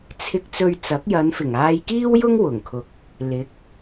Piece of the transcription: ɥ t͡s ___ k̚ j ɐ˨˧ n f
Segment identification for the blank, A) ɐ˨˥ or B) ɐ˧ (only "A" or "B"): A